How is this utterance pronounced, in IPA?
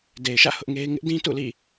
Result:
de˨ɪ̯ʃä̰˦˨ hʊ˦ʔŋe˦ɪ̯ ŋɪ˦ʔdĩ˦ tṵ˦˨lḭ˦˨

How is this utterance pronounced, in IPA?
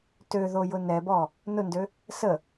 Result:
tøðojʊ nɛbɔ | nʊndø | sə

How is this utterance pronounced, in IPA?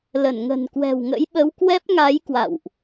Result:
lə˧˩nŋə̤˨˩nkwɛ̤˨˩w ŋə̰˧˥jɓə˨˦wkwɛ˦˥p̚ŋa˨˦j kwa̰˧˨wʔ

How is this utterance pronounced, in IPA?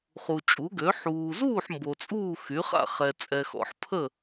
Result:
χu˨t͡ʃʼu˩˥ɡø˩˥ ħuː˨zuː˥˨ħ mbo˨t͡sʼuː˥˨ xy˩˥χa̰˥˨ χɛ˨t͡sʼɛ˨xɔ̰˨ħpʰə˥˨

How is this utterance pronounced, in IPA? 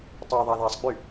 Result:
tˤo ðˤaðasˤɡ͡by

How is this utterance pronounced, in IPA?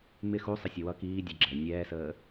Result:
mɪ xusˤəsʲə wʌ kiːdʲʊ ɡ͡ǁɛ nʲɛːsəː

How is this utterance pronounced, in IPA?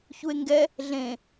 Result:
çue̯ŋɡɛ | ɮẽ

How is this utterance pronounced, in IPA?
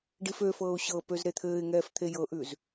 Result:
ɖif øfɤːʊ̯ ɕɤpøz ɾet̪ʰɘːɪ̯ŋɛːf t̪ʰejɤʔʉz

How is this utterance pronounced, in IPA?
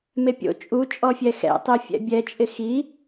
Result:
mepʲo̰ t͡ʃʼut͡ʃʼɔfʲɛ xɛ̰tˤi fʲɛ̰bʲɛt͡ʃʼɪ xi

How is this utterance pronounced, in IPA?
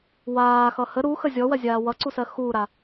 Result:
waːxʌ hə ɾuxə zʲɔwɜzʲaː wʌǀusɜ xuːɾa

